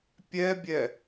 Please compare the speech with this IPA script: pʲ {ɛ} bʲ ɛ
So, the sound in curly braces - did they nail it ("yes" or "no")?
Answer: yes